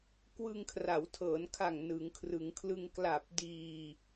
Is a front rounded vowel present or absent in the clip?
absent